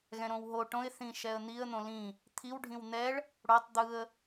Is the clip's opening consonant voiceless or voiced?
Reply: voiced